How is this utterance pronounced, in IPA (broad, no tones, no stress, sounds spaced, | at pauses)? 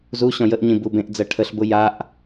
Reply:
z u ɕ ɔ̃ j ə ʔ ɲ ĩ b u b ẽ ʔ d͡z ɜ ʈʰ ə ɬ b ʊ j a ʔ